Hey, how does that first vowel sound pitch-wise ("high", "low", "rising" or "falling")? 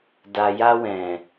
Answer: low